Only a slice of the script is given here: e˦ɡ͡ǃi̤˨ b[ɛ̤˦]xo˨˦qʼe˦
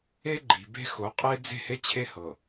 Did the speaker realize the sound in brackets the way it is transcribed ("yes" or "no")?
no